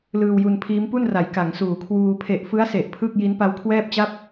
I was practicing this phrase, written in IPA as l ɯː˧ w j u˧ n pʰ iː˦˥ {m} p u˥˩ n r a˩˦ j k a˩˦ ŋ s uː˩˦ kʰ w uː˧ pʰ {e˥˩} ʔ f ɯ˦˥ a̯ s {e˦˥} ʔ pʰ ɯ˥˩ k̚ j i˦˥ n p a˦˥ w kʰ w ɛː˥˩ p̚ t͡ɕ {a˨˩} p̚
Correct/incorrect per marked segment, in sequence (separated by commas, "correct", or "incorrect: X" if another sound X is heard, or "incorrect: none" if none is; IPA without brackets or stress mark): correct, incorrect: e˨˩, incorrect: e˨˩, incorrect: a˥˩